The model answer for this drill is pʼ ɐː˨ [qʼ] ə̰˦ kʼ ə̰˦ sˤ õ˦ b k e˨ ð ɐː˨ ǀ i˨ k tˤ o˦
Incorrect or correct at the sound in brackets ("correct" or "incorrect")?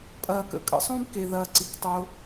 incorrect